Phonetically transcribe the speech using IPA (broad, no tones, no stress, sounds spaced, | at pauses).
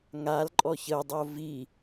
ŋ a l ǃʼ ɔ ç ə dˤ o v i